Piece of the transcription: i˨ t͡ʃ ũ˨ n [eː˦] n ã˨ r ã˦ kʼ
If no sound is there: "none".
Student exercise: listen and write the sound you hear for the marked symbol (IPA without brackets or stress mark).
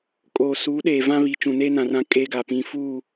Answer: eː˦